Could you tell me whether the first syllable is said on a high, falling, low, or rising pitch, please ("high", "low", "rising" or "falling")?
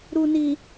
low